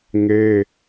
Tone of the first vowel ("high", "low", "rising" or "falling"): high